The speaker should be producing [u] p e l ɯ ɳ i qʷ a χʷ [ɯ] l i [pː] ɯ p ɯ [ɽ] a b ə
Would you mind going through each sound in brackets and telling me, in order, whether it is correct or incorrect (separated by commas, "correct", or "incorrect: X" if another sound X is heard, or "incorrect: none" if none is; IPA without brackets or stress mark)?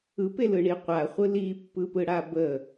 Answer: incorrect: ɯ, correct, correct, correct